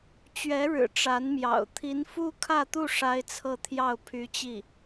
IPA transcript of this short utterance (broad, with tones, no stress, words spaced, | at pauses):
t͡ɕɥɛ˧˥ɻɻ̩˨˩ ʈ͡ʂa˧˥nmjɑ̰˨˩ʊ̯ t̪ʰi˧˥nfu˥kʰä˥˧t̪u˥˩ ʂa˥ɪ̯t͡sʰɤ˥˧t̪ʰjɑ˥˩ʊ̯ pʰy˧˥t͡ɕi˥˩